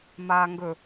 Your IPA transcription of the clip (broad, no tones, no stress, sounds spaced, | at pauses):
m aː ŋ ɡ ɵ